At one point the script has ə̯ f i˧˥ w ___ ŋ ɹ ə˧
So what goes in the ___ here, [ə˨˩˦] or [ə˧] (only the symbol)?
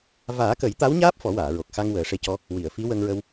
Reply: ə˧